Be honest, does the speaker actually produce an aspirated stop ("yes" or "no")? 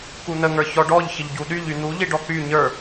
no